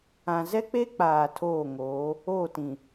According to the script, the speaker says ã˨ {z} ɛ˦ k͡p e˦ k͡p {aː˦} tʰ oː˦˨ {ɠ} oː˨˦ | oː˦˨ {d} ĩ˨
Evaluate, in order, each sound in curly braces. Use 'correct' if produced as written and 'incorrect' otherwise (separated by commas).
correct, incorrect, incorrect, incorrect